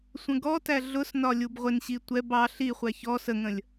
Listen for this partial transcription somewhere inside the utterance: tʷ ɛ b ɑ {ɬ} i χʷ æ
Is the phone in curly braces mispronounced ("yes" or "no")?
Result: no